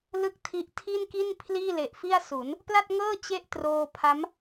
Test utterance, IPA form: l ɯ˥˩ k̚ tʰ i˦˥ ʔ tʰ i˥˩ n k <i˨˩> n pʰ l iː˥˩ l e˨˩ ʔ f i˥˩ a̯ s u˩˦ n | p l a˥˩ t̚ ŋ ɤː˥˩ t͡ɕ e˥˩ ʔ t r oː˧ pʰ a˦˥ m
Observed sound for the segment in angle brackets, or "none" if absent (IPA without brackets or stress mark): i˥˩